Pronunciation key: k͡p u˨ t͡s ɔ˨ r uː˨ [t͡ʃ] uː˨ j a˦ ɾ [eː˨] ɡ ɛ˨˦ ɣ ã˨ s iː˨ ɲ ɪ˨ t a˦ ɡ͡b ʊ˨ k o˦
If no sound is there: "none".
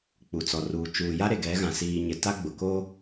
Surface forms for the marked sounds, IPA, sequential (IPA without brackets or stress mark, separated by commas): t͡ʃ, e˨